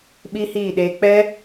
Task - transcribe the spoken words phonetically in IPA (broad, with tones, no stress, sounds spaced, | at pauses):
ɓ iː˦ h iː˦˨ ɗ eː˧ k͡p ɛ˦